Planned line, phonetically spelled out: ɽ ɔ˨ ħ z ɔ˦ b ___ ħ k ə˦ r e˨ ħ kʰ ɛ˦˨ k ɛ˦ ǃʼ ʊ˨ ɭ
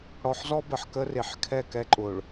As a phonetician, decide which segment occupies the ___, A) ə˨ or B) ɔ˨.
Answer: A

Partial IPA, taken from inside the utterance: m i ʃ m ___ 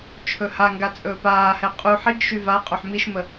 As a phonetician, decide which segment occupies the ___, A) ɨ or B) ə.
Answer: B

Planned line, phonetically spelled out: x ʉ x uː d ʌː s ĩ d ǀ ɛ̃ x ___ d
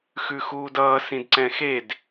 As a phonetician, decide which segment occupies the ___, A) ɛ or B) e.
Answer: B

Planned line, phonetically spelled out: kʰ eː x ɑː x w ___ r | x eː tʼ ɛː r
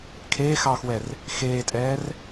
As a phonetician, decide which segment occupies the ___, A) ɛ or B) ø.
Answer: A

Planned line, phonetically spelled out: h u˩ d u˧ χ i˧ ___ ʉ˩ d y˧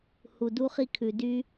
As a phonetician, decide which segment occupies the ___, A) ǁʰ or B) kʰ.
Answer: B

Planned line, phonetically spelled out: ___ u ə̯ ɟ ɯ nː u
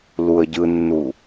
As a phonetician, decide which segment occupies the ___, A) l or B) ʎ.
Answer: A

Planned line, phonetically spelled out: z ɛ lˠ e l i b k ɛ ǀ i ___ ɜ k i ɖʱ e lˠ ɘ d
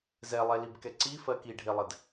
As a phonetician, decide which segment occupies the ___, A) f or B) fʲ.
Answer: A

